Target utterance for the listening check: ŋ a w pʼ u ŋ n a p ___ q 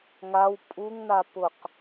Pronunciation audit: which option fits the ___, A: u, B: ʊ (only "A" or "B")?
B